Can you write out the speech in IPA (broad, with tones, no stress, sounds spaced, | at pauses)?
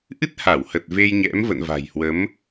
ʔ ɨ˦˥ t̚ h a˧˩ w h ə˨˩ t̚ v e˧ j ɲ ɛ̰˧˥ m v ə̰˧˨ n v a̤˨˩ j h w ə˨˦ m